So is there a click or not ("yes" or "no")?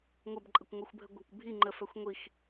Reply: yes